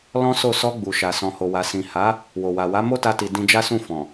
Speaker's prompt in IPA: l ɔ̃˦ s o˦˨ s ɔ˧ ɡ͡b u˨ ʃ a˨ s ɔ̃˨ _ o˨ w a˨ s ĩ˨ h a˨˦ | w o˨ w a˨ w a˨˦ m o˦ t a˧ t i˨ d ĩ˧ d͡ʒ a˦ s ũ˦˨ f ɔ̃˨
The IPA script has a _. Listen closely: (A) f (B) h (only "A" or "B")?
B